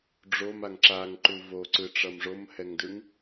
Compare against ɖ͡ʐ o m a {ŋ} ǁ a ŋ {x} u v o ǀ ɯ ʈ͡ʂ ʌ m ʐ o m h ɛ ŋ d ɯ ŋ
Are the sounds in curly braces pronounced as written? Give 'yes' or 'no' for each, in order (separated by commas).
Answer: yes, no